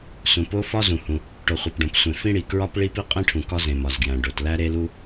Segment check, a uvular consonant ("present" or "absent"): present